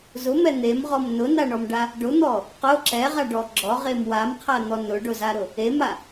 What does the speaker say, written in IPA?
z ʊ m ɛ n̪ e m ʁ ɔ m n ʊ n a ɳ ɔ m ɖ a | ɖ ʊ n̪ ɔ | q ʊ ǁ ɛ ʁ a ɖ ɔ ɡ͡ǁ ɔ ʁ e m w a m qʰ a n̪ ɔ n ʊ ɖ ʊ z a ɾ ʊ | e m a

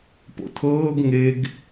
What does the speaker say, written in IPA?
p o̰ tʰ ɤː ɡ ŋ e ɡ

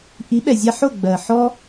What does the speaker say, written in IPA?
ʔ i˨˦ ɓ ɛ˨ zʲ a˧ ħ o˦˨ ɡ͡b ɜ˨ ħ ɔ˦

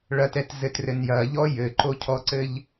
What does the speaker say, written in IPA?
ɭ ɐ t ɛ t z ɘ t r ɘ n j ɐ ʎ ɔ j ɘ ǃ o cʰ ɔ ǀ ɘ ʎ

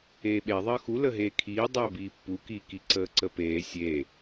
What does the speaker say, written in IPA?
eː ɓ e ðˤ əː x u l ə ɦ eː kʰ iː dˤ ɵː b iː pː u k i k i ǀ əː ǀ ə p eː sʲ e

